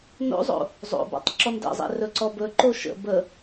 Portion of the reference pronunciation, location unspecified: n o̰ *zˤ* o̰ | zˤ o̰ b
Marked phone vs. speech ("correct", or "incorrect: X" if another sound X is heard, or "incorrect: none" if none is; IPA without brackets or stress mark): correct